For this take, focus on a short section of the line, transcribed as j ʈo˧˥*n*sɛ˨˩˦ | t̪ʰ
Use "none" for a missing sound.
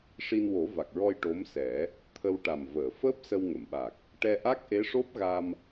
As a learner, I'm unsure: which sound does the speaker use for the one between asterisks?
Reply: m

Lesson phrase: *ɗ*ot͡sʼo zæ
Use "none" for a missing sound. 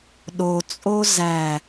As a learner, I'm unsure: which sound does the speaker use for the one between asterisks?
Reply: ɗ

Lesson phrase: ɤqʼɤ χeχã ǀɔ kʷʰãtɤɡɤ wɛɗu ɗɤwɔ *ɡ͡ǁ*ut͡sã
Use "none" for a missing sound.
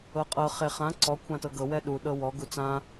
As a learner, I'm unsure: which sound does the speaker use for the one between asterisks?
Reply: ɡ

